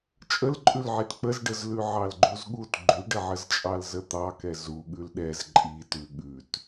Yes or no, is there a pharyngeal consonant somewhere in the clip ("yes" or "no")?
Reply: yes